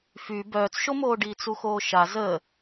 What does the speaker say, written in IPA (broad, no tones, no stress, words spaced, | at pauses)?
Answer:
fy bœːt͡sʃomoːɖiː t͡suxoːʃa zə